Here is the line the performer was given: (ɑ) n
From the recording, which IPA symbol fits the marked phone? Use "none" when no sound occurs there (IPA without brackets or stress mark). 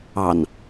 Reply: ɑ